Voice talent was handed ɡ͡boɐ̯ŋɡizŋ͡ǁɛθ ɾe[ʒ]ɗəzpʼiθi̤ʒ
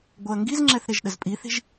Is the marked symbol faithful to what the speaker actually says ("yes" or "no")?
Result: yes